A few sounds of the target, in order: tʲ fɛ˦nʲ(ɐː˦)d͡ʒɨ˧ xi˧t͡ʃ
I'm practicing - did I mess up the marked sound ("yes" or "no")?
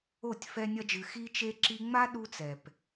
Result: yes